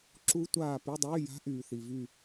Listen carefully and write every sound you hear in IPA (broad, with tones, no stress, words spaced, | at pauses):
ǁu˦˥tʷaː˦˨ py˧˥˧dˤyː˧˥˧ja̤˦˥ ʔyː˨θi˨vy˦˨